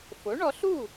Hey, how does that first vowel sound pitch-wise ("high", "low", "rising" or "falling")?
rising